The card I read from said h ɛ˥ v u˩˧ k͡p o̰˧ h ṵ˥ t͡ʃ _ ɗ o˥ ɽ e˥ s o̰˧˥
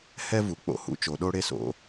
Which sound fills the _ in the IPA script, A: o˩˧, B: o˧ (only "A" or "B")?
A